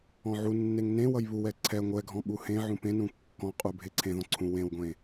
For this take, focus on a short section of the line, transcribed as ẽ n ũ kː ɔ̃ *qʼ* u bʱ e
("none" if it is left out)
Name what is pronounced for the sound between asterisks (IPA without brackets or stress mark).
qʼ